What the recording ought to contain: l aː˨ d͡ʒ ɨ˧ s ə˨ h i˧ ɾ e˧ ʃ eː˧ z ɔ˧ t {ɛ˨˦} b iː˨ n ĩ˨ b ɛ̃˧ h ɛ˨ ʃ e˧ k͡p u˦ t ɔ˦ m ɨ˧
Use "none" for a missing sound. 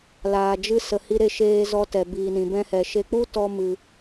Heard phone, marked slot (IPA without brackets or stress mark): ɛ˨